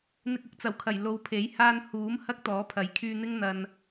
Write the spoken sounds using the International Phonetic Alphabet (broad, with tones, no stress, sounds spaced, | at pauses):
n̪ ɪ˧ k̚ ʊ˨˥ k̚ t͡s ɐ˨˩ w kʰ ɐ˨˩ j l o˨˧ w pʰ e˨˥ j h aː˧ n h uː˨˥ m h ɐ˥ k̚ t̪ ɔː˨˥ pʰ ɐ˨˥ j kʰ yː˧ n̪ ɪ˥ ŋ n̪ ɐ˨ n